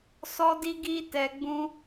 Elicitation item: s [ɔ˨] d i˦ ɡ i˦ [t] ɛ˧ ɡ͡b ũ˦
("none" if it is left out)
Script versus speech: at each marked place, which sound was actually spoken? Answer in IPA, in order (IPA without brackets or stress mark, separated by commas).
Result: ɔ˦, t